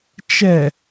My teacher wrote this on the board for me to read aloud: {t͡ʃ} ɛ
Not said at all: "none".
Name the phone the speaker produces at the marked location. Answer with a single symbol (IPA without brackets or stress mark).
t͡ʃ